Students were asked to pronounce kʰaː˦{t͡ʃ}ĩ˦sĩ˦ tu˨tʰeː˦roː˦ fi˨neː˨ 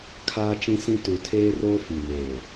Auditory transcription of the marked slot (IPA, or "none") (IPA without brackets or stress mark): t͡ʃ